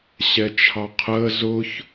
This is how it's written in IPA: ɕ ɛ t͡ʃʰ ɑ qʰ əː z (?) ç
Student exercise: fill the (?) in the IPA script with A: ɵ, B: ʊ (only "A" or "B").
B